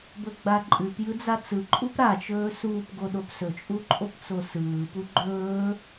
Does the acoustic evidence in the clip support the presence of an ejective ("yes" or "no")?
yes